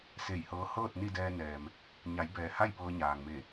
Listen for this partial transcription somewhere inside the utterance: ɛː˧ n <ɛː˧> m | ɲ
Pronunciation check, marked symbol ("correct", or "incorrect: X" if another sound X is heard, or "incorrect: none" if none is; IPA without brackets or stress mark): incorrect: ɛː˩